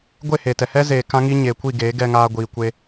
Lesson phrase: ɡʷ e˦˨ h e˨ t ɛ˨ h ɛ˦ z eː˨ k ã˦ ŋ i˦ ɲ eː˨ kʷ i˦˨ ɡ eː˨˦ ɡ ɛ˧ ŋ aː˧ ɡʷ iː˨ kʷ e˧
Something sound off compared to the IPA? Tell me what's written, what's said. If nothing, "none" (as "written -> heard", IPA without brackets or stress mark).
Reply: none